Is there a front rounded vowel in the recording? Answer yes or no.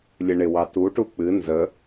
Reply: no